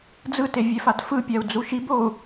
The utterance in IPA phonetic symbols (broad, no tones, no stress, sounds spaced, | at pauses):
d͡z ɯ t e vʲ ɛ f a d f ɯ pʲ a u̯ d͡z u ʃ i b o u̯